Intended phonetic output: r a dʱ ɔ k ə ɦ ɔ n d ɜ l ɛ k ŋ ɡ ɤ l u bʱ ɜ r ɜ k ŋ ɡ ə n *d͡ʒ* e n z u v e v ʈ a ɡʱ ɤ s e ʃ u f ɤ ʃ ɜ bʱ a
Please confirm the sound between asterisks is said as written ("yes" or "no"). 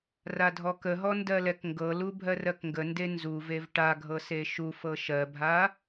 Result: no